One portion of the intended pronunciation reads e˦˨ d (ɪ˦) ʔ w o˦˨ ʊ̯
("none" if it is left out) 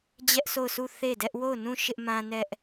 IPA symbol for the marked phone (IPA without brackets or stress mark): ɛ˦